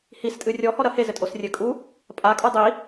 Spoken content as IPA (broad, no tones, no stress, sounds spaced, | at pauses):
h i s tʼ ɨ rʲ ɔ h ɔ ɾ ɐ h e z ɘ tʼ o s rʲ ɘ kʼ u | pʼ a kʼ o dˤ i